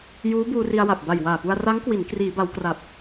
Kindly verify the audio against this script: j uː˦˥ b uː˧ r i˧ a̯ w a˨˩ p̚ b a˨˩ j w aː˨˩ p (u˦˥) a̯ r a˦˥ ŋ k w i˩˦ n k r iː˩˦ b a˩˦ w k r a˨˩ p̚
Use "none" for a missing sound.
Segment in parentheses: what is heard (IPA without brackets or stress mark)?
u˧